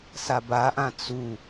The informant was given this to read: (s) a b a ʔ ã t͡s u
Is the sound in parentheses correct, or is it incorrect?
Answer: correct